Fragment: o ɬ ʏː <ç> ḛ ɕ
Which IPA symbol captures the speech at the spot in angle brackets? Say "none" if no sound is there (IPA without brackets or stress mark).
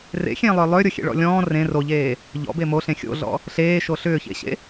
ç